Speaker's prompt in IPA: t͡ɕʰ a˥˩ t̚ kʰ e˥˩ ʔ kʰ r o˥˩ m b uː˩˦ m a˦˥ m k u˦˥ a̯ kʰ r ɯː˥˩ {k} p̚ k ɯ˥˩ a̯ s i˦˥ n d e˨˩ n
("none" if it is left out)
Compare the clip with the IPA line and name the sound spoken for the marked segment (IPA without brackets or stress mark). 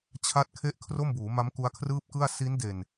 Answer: none